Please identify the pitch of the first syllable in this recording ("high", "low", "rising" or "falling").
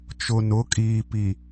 low